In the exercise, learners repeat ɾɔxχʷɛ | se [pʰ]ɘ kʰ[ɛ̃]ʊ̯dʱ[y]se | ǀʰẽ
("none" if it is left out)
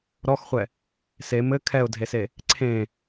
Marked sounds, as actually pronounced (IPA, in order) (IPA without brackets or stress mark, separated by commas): m, ɛ, e